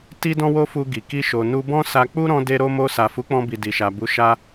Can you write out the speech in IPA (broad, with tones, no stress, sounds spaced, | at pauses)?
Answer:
t i˦ d ɔ̃˦ w o˦ f u˧ ɡ i˨ k i˧ ʃ o˨ n u˧ b ɔ̃˦ s a˧ k͡p u˦ ɾ ɔ̃˧ d e˧ ɾ o˧ m o˧ s a˨ f u˨˦ k͡p ɔ̃˧ b i˨ d i˨ ʃ a˨ b u˨˦ ʃ a˦